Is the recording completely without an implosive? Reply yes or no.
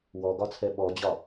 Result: no